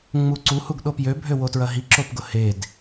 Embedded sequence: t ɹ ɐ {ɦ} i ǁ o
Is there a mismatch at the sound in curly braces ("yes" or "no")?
no